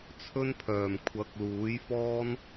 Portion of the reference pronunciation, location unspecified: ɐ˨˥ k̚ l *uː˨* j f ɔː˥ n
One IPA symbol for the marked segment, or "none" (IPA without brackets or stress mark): uː˨˥